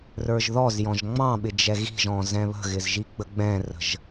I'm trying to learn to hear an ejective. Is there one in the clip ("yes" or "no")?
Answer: no